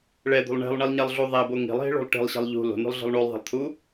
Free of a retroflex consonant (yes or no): no